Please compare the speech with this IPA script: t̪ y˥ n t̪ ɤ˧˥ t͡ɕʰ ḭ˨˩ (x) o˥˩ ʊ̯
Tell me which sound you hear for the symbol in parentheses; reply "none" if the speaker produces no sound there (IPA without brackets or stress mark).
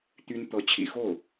x